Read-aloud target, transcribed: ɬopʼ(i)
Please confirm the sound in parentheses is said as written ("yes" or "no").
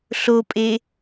no